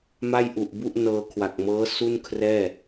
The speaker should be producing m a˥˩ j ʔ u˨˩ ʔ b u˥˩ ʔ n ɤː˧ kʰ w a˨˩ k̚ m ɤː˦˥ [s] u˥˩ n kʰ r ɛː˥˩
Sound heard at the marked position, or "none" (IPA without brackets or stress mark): s